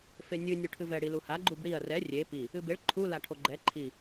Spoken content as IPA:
fenʲɨ nʲuʈʰɨvɛ ɽiluha ɡ͡ǃubɽiɐ̯ rɛ rʲe pi | ɨbeɭ ǃʰu laʈʰoɡ͡ǃɛ ǃʰi

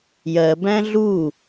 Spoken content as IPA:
jɜbæ̃ ɮu

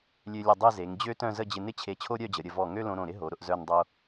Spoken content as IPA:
lʲø˧lʲə˧˩dˤe˥˧ze˩˧ŋ d͡ʑø˥tœ̃˥˧zə˥˧ d͡ʑɪ˧nɪ˥t͡ɕʰe˧˩ t͡ɕʰo˥ɾʲœ˥˧d͡ʑə˩˧ ɾʲə˩˧vɔ˧˩ ŋø˥lõ˧ɾõ˧˩ɾɪ˥ ɦo˩˧ɾʊ˧ʔ zœ˥˧ndˤo˥

